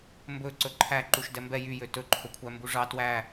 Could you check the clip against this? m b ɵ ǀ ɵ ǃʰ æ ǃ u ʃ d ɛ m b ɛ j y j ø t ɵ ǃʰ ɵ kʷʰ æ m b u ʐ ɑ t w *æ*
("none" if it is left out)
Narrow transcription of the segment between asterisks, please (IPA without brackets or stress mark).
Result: æ